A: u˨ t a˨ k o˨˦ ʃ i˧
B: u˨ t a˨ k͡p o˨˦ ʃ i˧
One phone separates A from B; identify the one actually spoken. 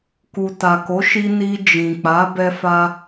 A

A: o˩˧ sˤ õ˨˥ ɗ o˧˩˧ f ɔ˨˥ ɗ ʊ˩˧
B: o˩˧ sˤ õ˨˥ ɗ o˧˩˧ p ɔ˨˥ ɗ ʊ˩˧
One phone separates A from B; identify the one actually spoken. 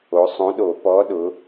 B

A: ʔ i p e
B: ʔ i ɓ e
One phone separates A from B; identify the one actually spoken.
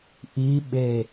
B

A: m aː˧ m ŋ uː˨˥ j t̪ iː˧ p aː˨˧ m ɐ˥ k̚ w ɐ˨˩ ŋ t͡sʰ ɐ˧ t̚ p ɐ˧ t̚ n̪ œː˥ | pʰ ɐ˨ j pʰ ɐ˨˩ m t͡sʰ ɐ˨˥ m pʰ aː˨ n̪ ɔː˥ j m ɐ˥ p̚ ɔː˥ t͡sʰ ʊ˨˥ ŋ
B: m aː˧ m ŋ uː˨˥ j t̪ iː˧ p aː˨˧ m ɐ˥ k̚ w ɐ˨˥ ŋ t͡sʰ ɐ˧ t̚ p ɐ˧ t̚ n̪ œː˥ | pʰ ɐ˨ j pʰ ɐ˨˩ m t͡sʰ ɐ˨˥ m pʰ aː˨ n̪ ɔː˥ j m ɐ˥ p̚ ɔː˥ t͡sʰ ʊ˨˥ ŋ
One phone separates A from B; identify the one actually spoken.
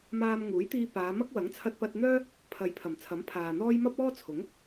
B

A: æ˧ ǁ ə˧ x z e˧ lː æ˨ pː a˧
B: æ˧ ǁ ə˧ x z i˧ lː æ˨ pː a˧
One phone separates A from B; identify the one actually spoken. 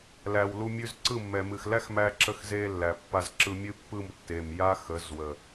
A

